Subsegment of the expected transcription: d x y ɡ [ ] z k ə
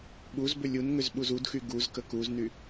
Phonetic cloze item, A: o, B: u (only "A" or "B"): B